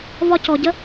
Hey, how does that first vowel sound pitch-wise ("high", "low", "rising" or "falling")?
high